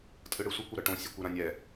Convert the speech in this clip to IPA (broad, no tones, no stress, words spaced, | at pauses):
tʼɯɽɯsʷɯkʷ oɾʌʈõ sʲokʷeɾãnʲɛ